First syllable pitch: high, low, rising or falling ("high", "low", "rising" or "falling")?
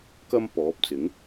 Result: high